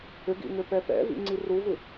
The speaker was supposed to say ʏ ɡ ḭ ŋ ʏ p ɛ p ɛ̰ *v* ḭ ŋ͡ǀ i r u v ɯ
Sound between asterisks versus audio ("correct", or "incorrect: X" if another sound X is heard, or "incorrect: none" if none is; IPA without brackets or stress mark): correct